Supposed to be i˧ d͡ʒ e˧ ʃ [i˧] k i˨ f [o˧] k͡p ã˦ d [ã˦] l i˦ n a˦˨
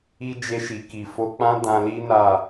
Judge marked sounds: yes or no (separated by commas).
no, yes, no